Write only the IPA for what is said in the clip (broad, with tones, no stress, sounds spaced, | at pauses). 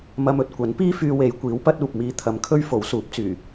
m ɐ˧ m ɵ˨ t̚ kʷ ɐ˨˥ n p iː˥ f yː˧ w e˨˧ j kʷ iː˨˥ w p ɐ˥ t̚ uː˨ p̚ m iː˧ t̪ʰ ɐ˨ m kʰ ɵ˥ ɥ f o˨˥ w s uː˨˥ p̚ t͡s yː˨˩